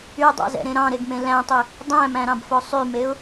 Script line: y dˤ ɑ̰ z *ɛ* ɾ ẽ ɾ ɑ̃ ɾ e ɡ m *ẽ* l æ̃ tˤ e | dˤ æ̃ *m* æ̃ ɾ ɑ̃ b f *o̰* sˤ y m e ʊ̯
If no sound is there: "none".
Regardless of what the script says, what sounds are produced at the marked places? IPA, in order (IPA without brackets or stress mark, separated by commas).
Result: ɛ̰, ẽ, m, o